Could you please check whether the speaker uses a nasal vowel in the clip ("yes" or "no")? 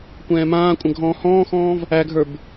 yes